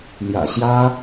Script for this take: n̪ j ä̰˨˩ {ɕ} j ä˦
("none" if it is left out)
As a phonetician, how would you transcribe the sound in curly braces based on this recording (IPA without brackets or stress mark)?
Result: ɕ